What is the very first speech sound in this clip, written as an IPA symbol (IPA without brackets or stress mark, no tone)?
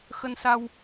x